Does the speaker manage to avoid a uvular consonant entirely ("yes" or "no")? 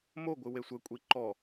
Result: yes